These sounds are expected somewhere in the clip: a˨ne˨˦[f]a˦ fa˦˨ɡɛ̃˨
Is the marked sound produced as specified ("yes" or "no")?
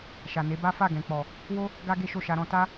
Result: no